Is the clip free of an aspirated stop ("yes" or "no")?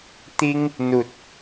yes